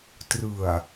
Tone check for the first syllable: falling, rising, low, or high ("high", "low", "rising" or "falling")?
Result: low